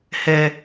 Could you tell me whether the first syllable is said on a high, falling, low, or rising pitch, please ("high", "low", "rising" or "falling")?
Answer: low